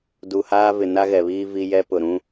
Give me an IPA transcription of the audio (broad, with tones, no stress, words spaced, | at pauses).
du˨haː˦ vɪ˨na˦ɣɛ˨βiː˦ vi˦ jɛ˦pʊ˨ɾũ˦